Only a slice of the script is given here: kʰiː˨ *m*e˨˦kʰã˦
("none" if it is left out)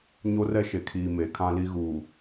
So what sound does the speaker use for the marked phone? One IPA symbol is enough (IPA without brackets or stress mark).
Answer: m